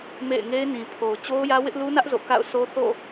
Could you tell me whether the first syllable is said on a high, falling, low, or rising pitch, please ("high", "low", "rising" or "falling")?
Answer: falling